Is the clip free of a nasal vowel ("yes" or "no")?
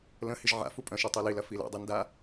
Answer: no